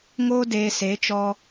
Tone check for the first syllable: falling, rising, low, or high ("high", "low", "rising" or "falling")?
high